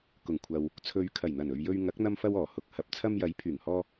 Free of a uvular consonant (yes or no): yes